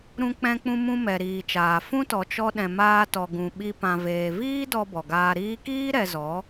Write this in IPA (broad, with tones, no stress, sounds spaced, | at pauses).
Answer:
ɾ ũ˧ k͡p ɛ̃˧ k͡p ũ˧ m ũ˧ m ɛ˨ ɾ iː˨ t͡ʃ aː˨ f ũ˦ t ɔ˨ t͡ʃ ɔ˧ ɗ ɛ̃˨ m aː˧ t ɔ˨ ɡ ũ˨ ɓ i˧ p ã˨ v eː˨ v iː˦ d ɔ˧ b ɔ˨ ɡ aː˧ ɾ iː˧ k iː˦ ɾ ɛ˧ z ɔ˨˦